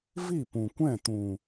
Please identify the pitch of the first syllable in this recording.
falling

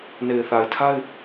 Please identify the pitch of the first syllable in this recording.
low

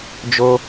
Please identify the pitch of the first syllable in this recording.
high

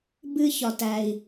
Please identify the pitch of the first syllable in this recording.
low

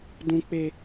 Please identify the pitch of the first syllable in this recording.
high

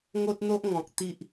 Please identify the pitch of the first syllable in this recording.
high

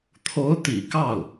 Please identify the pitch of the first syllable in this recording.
rising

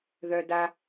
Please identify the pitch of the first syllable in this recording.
high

